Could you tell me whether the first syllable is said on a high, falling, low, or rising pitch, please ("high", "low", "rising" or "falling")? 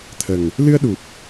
low